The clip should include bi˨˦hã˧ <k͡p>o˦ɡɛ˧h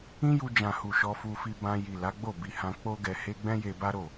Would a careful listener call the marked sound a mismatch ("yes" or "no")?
no